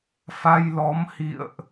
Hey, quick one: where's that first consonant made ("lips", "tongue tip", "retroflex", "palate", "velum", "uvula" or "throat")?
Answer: lips